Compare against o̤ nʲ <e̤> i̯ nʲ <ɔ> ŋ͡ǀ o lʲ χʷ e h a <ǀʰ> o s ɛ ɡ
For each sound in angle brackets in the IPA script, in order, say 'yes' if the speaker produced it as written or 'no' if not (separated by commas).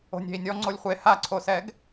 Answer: yes, yes, yes